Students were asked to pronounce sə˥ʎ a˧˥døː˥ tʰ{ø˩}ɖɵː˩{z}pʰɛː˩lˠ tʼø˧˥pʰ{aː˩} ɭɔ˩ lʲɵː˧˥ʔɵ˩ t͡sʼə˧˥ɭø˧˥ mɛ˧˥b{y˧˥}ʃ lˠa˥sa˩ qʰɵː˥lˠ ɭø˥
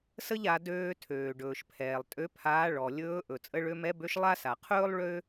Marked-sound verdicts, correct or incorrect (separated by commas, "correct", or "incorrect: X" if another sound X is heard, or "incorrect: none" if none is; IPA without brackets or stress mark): incorrect: øː˩, incorrect: ʃ, incorrect: aː˧˥, incorrect: ø˧˥